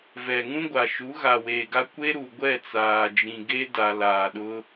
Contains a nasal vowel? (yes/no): yes